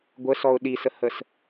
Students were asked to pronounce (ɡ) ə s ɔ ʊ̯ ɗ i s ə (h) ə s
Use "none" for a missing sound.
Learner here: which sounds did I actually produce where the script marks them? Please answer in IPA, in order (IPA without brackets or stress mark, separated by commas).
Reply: ɡʷ, h